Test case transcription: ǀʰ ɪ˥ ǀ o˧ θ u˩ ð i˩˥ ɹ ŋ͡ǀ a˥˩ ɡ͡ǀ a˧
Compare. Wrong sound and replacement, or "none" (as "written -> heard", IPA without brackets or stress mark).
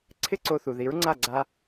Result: none